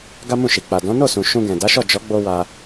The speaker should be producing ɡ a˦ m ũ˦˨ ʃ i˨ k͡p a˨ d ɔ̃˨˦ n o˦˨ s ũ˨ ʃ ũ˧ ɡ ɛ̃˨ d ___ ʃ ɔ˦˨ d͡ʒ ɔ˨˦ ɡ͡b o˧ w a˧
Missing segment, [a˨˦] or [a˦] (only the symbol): a˨˦